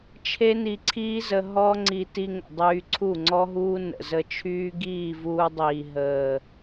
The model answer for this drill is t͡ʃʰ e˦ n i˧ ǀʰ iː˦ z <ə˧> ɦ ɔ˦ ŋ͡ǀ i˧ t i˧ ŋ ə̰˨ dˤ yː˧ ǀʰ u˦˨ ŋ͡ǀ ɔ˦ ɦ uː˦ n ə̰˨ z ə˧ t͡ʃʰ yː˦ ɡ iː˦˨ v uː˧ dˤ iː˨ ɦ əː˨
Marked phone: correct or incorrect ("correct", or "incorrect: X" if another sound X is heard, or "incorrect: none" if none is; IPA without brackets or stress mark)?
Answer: correct